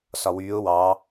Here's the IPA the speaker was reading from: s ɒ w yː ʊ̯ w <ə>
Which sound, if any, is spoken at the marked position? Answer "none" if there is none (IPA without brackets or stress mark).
ɑ